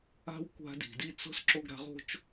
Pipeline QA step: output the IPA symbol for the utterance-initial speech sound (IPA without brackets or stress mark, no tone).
a̤